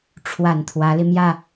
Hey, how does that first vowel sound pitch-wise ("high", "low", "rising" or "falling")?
low